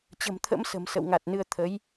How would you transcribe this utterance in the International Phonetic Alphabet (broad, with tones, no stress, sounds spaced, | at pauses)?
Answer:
t͡ɕ ə̤˨˩ m t̪ʰ ə̰˧˥ m s ə̤˨˩ m s ə̰˧˨ w ŋ a˨˩ t̚ n ɨ˧ ə̯ t̪ʰ ə˨˦ j